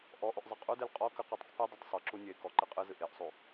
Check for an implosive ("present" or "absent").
absent